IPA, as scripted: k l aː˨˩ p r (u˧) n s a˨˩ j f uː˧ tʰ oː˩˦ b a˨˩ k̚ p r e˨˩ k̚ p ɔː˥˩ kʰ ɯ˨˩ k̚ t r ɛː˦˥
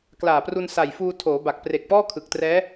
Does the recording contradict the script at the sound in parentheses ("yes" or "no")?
no